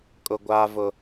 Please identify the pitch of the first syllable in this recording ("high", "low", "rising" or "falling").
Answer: high